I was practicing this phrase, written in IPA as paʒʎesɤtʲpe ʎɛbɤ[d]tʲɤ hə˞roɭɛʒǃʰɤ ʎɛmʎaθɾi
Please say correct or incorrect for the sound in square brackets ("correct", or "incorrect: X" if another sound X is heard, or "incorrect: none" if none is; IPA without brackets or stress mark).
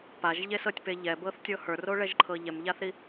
incorrect: θ